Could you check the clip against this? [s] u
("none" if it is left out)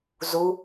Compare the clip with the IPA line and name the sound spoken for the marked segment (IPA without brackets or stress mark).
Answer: z